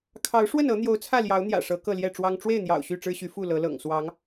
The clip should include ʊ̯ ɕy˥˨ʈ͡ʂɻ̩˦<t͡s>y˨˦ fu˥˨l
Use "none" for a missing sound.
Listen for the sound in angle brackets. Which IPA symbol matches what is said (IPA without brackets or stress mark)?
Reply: ɕ